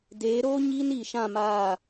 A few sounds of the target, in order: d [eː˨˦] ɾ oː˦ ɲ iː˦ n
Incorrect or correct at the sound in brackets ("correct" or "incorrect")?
correct